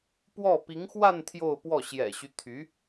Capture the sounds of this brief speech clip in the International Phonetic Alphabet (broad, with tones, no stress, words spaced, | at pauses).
pwɔ˥˩ pi˧˥ŋxwa˥˧n t̪ʰjo˥˧ʊ̯pwɔ˥˩ ɕjɛ̰˨˩ɕy˦ t̪ʰy˧˥